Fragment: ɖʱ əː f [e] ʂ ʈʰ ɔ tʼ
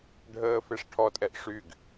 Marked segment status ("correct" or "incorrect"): correct